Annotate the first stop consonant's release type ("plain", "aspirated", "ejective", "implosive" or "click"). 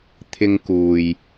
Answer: aspirated